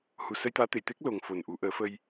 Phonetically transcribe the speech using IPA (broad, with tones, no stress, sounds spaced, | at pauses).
h u˨˩ s ə˧ j t̪ aː˧˥ t̪ e˨˩˨ j t̪ e˦˥ k̚ l o˨˩ ŋ f o˨˩ n ʔ u˨˩˦ ʔ əː˨˩˦ f ə˧ j